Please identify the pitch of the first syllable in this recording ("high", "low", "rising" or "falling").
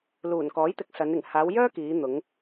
low